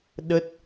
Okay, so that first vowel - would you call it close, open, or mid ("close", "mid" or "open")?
mid